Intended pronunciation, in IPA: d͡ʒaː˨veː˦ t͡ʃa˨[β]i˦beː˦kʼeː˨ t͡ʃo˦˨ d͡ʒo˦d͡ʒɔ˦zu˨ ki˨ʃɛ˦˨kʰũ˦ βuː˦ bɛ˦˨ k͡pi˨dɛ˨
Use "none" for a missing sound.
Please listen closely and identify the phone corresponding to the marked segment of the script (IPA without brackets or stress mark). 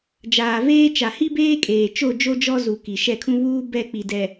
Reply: h